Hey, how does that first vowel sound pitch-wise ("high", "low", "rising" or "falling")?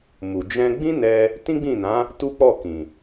low